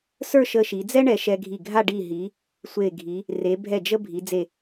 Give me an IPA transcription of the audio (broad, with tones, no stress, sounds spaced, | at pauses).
s ə˞˥˧ ʃ ə˧ ʃ i˩˧ d͡z ɛ˥ ɳ ɛ˧ ʃ ɛ˧ ɡʱ i˧˩ ɡʱ a˥˧ ɖ i˧˩ ɦ i˩˧ | sʷ e˧˩ ɡʱ i˩˧ | r e˩˧ bʱ ɛ˧˩ d͡ʒ ə˧ bʱ i˩˧ d͡z e˧˩